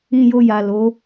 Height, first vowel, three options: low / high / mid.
high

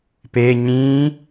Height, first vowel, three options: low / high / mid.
mid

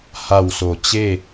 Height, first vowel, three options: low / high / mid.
low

